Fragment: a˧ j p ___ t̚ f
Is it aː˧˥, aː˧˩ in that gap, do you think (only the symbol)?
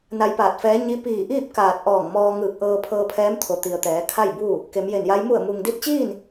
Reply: aː˧˩